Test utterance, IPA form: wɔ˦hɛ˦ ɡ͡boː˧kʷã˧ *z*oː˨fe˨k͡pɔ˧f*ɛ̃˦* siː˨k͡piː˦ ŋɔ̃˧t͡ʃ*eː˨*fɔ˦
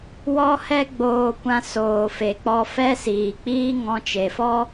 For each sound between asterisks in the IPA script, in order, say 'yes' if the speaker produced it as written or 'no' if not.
no, no, no

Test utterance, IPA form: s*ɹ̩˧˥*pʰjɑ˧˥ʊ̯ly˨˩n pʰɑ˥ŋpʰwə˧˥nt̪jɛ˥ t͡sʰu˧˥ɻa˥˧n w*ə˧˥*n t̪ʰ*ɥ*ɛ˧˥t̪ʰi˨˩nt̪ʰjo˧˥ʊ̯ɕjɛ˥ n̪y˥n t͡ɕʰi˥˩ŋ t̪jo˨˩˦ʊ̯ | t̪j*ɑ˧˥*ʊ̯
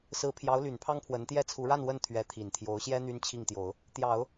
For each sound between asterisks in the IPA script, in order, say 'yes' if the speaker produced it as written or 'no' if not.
yes, no, yes, no

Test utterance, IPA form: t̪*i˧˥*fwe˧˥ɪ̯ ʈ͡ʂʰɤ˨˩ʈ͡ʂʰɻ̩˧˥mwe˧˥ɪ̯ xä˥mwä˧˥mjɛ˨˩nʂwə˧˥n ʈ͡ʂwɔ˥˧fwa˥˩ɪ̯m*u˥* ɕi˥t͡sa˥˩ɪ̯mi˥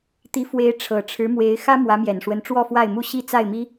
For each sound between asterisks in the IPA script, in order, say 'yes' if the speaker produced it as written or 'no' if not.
yes, yes

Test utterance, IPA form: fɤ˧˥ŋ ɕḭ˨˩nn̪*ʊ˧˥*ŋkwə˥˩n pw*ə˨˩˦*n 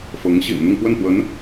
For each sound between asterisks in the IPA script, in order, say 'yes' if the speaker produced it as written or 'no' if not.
no, no

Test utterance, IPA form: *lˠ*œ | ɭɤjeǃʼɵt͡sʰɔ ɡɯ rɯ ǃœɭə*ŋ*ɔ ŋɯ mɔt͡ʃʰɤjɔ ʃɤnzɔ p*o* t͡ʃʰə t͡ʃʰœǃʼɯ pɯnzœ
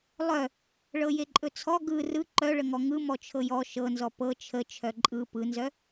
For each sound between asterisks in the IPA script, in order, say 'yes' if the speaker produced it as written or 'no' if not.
yes, yes, no

